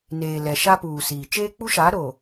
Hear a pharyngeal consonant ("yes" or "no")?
no